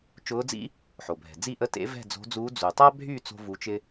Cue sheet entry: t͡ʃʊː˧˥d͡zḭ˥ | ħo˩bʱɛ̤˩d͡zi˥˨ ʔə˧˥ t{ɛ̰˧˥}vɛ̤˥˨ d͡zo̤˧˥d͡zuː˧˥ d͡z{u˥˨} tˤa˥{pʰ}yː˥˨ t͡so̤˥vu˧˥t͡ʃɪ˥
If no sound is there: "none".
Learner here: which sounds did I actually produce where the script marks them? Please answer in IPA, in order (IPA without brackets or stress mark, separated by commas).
ḛ˧˥, u˩, bʱ